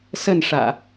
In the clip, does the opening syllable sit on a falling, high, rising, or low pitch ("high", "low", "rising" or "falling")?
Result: falling